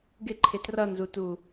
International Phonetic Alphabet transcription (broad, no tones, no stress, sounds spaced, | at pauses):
ɡ ɪ ǃʰ ɪ t r ʌ n z u t u